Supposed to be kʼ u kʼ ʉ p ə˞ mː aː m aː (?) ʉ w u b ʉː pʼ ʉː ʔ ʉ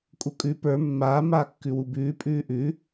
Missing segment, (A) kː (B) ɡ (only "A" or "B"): A